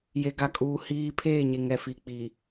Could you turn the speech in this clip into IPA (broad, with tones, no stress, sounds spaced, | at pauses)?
j e˨ ɡ a˨ kʼ uː˨ h iː˦ pʰ eː˦˨ ɲ e˨ ŋ ɛ˨ f i˨ k͡p i˨